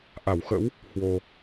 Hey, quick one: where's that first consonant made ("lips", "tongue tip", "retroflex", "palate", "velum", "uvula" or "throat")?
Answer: throat